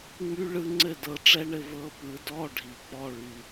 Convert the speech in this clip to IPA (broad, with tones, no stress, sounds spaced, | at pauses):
ŋ͡m y˦˥ ɭ ɯ˦˥ ŋ͡ǀ ɘ˥˧ d ɤ˨˦ ʈ͡ʂ ɛ˦˥ ɳ ɘ˥˧ v ɤ˨˦ p ɯ˨˩˦ d ɔ˧˥˧ ɖʱ i˨˩ k͡p ɔ˧˥˧ ɭ y˨˩